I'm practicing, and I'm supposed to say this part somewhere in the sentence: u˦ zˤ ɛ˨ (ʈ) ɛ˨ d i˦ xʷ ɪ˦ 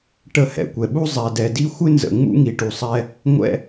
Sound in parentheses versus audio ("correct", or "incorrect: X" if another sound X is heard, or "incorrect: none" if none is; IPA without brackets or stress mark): incorrect: d